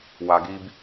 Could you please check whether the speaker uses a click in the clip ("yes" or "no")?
no